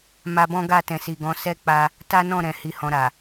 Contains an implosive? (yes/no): no